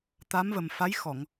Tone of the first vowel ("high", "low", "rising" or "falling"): rising